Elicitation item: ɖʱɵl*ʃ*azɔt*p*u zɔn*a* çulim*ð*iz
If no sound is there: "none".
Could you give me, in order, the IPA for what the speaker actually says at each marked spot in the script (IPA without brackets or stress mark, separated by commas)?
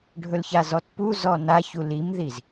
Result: ç, p, a, ð